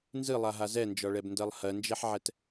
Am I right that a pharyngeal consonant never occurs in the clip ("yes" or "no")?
no